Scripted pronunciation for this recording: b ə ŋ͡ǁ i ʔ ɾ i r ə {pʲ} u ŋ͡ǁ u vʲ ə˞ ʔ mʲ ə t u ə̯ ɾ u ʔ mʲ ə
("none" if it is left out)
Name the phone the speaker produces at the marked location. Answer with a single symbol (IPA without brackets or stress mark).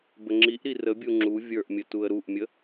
bʲ